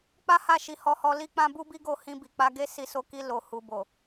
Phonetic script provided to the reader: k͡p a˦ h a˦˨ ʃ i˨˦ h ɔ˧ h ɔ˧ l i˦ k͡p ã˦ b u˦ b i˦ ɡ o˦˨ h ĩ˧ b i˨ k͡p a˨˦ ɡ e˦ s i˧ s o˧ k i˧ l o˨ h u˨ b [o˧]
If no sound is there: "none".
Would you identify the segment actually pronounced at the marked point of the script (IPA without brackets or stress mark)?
o˨